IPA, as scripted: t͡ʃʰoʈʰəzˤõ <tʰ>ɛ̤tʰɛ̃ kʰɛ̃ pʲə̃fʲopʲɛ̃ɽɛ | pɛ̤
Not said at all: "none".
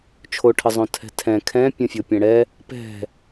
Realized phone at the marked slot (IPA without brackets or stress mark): tʰ